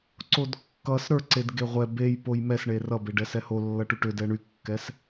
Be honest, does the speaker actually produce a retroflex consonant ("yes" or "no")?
yes